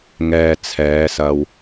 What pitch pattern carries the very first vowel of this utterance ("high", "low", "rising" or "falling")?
low